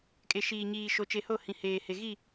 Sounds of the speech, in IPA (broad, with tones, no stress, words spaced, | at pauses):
kʼe˨ʃiː˨ɲiː˨ ʃo˨t͡ʃe˨ho˦˨ hĩ˨heː˨he˨ ɣi˦˨